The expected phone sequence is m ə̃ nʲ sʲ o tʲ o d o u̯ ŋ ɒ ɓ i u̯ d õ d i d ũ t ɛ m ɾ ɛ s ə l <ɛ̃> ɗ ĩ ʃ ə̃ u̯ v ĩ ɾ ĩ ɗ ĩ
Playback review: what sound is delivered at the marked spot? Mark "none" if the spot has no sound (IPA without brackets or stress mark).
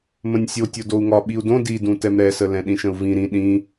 ɛ̃